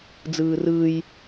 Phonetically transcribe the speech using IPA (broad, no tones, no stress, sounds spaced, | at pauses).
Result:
d͡z ɯː r ɯː j